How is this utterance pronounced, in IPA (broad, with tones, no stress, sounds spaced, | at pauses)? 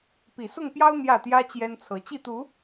p i˨˩ s ʊ˥˨ ŋ p j ɑ˦ ʊ̯ n̪ j ä˥˨ t̪ j ä˦ t͡ɕ j ɛ˦ n t͡sʰ ɤ˨˦ t͡ɕ i˥˨ t̪ u˨˦